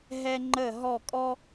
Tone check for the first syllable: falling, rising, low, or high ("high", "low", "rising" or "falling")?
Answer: high